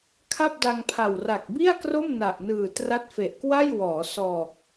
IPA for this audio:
kʰ a˥˩ p̚ d a˧ ŋ pʰ a˨˩ w r a˨˩ k̚ b i˥˩ a̯ k r o˥˩ m n a˨˩ ʔ n ɯː˨˩ t r a˦˥ t̚ f e˨˩ ʔ k w a˥˩ j w ɔː˩˦ s ɔː˨˩ k̚

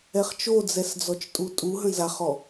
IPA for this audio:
ɛ χ t͡ʃ o d͡z ɛ s d͡z ɔ t͡ʃ tʼ u tʼ u ɦ ə̃ z a χ ɔ

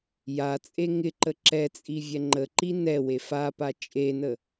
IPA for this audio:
j a t͡sʼ e ŋ ɪ ǃ ə ǁ ɛ t͡sʼ i vʲ ɛ ŋ͡ǃ ə ǃ i n ɛ w e f a p a t͡ʃʼ e n ə

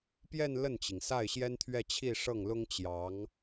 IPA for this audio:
p j ɛ˥˧ n l ə˥˩ n t͡ɕ i˩ ŋ s a˥˩ ɪ̯ ɕ j ɛ˥ n t̪ʰ ɥ ɛ˥˧ t͡ɕʰ i˥˧ ʂ ɤ˥˩ ŋ l ʊ˥ ŋ t͡ɕ j ɑ˧˥ ŋ

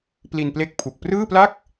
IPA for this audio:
p l i˧ n p l e˦˥ k̚ pʰ u˨˩ k̚ p r ɯː˥˩ p l a˥˩ k̚

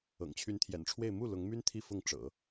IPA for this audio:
ɤ̰˨˩ ŋ t͡ɕʰ y˧˥ n t̪ʰ j ɛ̰˨˩ n ʈ͡ʂʰ w e˥˧ ɪ̯ m u˥˩ l ʊ˧˥ ŋ m y˥ n t̪ʰ i˥˧ f ʊ˥˩ ŋ ʈ͡ʂ ɤ̰˨˩˦

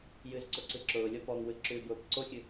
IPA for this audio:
j ɨ z ǀ ʊ ǀ ɨ ǁ ʊː lʲ ɔ p ɔ ŋ w ɨ ǁ ʉ b ʊː p ǀ o xʲ ɨ

